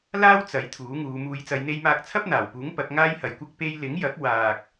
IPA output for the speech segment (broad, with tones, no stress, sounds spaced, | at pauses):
l aː˥ w t͡s ɐ˨˥ j t̪ʰ uː˨˥ ŋ uː˨˧ m uː˨˧ j t͡s ɐ˨˧ j n̪ e˧ j m aː˧ k̚ t͡sʰ ɐ˥ p̚ n̪ aː˨˩ w p uː˨˥ ŋ p ɐ˨˥ k̚ ŋ aː˥ j h ɐ˨ j kʷ ɐ˥ k̚ p e˧ j l ɪ˨˥ ŋ j ɐ˨˥ k̚ w aː˨ k̚